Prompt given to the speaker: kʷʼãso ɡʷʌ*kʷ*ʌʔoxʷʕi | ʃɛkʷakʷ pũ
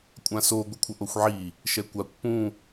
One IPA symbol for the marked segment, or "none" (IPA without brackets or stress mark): kʷʰ